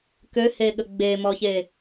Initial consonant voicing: voiceless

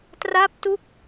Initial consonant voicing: voiceless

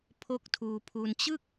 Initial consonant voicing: voiceless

